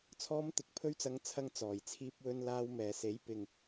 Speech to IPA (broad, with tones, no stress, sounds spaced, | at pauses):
t͡sʰ ɔː˧ m t̪ ɪ˨ k̚ pʰ ɵ˧ ɥ t͡s ɐ˨˧ ŋ t͡sʰ ɐ˧ ŋ t͡s ɔː˨˩ j t͡sʰ iː˧ p̚ w ɵ˧ n l aː˧ w m ɛː˨ s e˨˥ j p ɪ˨ ŋ